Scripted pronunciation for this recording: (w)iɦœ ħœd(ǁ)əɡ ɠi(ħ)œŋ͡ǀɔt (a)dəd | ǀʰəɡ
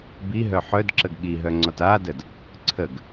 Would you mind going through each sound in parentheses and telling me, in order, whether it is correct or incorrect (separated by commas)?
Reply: incorrect, correct, incorrect, correct